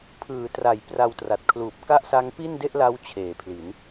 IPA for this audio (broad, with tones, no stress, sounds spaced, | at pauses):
pʰ ɯː˩˦ t r a˩˦ j p r a˧ w t r a˨˩ t̚ kʰ l uː˨˩ p̚ k a˥˩ ʔ s a˦˥ ŋ p i˥˩ n d e˥˩ ʔ l a˦˥ w t͡ɕʰ eː˩˦ pʰ l i˩˦ n